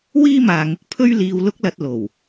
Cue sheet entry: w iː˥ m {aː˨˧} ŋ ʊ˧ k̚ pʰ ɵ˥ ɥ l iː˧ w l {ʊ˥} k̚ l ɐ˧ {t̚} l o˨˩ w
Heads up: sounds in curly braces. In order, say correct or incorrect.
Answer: incorrect: aː˨, correct, correct

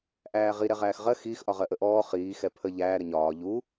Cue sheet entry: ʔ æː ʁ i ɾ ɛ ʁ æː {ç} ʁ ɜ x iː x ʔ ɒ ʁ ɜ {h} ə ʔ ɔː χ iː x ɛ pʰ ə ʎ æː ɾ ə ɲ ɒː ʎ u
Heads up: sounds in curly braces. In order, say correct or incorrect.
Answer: incorrect: x, incorrect: ʔ

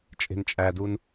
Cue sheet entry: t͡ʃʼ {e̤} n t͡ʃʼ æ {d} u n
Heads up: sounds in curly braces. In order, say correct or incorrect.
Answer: correct, correct

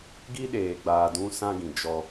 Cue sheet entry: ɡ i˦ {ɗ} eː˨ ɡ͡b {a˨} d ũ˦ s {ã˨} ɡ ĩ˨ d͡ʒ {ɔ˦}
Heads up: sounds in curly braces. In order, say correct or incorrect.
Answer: correct, incorrect: aː˨, incorrect: ã˦, correct

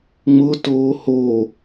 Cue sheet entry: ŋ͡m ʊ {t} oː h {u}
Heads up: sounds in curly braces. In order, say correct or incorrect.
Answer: correct, incorrect: o

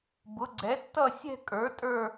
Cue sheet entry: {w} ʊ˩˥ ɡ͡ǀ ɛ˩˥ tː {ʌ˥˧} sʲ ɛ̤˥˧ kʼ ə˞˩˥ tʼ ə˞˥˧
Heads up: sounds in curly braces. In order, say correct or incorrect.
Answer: incorrect: b, correct

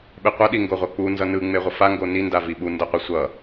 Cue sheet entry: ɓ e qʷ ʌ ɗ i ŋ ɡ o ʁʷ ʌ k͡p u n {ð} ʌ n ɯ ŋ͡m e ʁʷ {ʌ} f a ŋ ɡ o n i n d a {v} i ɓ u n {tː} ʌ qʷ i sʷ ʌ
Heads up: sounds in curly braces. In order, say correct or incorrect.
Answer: incorrect: z, correct, correct, incorrect: d

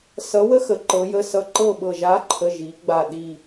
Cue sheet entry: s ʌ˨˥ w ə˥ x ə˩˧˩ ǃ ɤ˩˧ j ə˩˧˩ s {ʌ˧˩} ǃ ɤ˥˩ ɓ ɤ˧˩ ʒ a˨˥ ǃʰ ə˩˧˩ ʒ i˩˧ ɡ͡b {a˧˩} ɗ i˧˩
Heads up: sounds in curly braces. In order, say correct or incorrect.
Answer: correct, correct

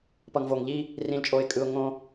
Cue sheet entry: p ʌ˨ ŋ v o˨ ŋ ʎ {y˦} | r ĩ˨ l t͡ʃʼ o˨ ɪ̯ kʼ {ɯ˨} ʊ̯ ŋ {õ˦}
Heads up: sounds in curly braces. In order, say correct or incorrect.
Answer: incorrect: i˦, correct, correct

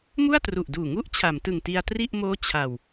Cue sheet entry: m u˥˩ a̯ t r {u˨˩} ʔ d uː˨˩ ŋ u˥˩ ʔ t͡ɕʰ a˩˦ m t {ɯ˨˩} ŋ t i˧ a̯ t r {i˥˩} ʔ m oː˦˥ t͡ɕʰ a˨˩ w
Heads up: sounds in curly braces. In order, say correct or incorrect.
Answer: correct, correct, correct

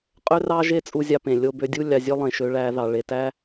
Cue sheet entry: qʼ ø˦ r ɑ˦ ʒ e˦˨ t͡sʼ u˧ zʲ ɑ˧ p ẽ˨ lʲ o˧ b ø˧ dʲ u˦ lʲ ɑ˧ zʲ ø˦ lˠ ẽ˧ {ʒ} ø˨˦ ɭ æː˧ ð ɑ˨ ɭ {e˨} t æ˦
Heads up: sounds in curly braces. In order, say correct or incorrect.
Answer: incorrect: ʃ, correct

